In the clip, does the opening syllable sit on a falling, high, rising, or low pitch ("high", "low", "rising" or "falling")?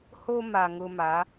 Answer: high